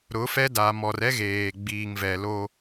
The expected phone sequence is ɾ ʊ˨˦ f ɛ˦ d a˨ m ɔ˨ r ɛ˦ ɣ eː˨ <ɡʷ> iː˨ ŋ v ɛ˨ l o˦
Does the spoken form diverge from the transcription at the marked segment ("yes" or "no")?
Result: yes